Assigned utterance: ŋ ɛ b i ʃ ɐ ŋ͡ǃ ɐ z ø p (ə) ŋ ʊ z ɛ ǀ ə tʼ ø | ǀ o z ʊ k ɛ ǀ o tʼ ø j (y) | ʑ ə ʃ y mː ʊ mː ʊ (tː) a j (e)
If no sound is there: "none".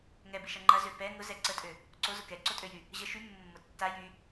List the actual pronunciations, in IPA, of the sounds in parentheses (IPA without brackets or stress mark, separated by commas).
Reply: ɛ, y, tː, y